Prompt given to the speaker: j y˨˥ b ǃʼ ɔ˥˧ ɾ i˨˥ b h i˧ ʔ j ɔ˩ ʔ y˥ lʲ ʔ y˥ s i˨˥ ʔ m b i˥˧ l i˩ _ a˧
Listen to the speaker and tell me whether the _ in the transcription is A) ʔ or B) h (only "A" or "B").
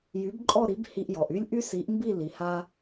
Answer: B